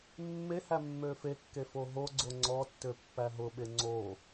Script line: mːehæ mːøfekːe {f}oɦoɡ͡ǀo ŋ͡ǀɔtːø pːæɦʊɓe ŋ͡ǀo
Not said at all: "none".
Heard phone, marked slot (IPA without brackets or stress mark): f